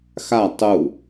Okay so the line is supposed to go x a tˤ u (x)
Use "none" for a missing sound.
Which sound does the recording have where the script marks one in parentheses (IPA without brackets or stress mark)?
none